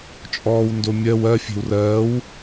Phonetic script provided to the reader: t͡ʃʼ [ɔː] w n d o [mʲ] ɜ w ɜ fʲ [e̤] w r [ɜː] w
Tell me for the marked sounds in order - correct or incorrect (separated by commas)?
correct, correct, correct, correct